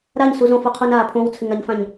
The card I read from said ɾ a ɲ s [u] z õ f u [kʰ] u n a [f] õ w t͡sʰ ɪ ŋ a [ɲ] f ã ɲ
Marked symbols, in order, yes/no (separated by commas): yes, no, no, yes